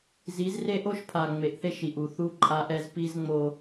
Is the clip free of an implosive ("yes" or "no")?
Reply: yes